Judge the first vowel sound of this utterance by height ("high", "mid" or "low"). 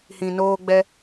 high